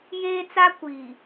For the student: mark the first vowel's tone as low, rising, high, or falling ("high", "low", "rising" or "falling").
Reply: high